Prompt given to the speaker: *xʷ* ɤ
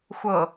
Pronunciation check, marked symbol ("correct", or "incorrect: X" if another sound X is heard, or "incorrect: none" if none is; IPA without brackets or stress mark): correct